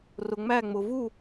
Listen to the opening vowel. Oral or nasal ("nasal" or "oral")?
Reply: oral